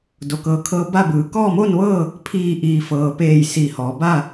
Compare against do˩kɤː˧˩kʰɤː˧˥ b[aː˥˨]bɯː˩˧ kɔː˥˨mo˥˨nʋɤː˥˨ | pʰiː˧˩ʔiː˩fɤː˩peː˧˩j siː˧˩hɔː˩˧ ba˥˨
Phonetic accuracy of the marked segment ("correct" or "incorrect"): incorrect